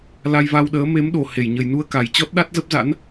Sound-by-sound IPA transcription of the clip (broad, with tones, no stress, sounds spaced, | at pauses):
l a˧ j v a˧ w ɗ əː˨˦ m e˨˦ m ɗ o˨˩ h e˧˩ j ɲ ə˨˩ j n u˧ ə̯ k a˨˩ j t͡ɕ ɔ˦˥ t̚ ɗ a˦˥ t̚ z ə˦˥ p̚ z a̰˧˥ n